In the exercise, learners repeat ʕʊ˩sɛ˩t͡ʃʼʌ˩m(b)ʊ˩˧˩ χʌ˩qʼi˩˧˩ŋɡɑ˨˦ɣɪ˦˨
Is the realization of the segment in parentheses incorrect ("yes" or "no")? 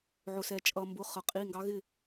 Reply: no